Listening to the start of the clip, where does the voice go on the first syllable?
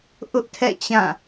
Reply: high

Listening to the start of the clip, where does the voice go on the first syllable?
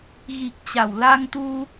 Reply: low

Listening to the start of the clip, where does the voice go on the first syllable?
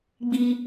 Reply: low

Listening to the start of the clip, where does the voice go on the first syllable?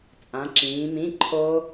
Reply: rising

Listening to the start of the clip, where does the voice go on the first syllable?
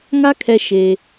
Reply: high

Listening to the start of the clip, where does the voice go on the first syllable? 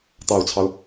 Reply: low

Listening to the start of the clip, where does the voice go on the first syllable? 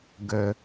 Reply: low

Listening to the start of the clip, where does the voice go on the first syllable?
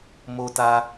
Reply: high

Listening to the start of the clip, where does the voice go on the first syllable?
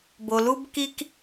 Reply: low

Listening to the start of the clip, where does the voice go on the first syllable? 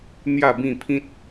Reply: falling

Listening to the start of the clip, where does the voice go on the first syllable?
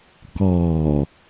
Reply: low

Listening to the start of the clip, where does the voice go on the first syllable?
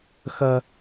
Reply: high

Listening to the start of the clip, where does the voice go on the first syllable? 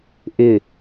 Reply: low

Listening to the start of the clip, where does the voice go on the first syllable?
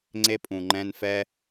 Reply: high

